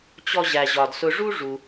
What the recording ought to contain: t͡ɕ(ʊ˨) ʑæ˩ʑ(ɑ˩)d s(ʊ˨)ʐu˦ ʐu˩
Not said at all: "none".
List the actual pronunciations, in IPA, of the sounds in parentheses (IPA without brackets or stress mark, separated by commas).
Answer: ɔ˨, ɒ˩, ʊ˨